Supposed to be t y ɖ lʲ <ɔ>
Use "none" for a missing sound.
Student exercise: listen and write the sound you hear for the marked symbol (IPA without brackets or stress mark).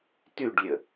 ə